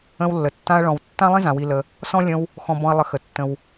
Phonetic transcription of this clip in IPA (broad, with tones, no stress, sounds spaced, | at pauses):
ə̃˦ w lː ə˩ tː ã˦ ɐ̯ ɭ ɔ̃˨ w tː ã˥ lˠ ĩ˥ z ã˨ w i˨ l ə˨ | s ɔ̃˥ lʲ ə̃˦ w | x ɔ̃˨ b ɔ̃˨ ɐ̯ lˠ ə˨ x ə˩ tː ə̃˨ w